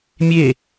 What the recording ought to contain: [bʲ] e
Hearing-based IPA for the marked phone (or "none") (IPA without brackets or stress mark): mʲ